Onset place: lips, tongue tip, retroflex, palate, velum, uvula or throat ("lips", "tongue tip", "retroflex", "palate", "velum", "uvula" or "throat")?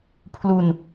lips